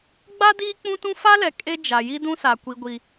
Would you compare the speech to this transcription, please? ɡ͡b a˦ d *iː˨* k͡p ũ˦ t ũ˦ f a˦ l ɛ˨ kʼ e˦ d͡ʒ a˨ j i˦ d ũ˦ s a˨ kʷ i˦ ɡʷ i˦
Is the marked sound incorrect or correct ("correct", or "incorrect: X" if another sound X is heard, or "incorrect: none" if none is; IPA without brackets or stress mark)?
incorrect: iː˦